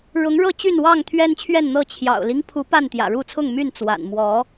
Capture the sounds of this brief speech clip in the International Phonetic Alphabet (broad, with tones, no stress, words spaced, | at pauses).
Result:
ɻʊ˨˦ŋ ɻɤ˥˨t͡ɕy˥˨nwɑ˥˨ŋ t̪ʰɥɛ˦nt͡ɕʰɥɛ˥˨nn̪ɤ˥˨ t͡ɕʰjɑ̰˨˩ʊ̯li˦ŋ pʰu˨˦ pa˥˨nt̪jä̰˨˩ɻu˥˨ t͡sʰʊ˥˨ŋmy˥˨n t͡swa̰˨˩n mwɔ˨˦